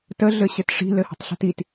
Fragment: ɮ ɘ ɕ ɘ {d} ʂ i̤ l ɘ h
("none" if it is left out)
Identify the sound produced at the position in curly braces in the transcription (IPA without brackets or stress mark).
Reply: t